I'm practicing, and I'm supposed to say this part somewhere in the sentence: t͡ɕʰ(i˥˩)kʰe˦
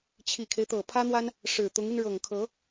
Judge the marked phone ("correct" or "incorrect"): incorrect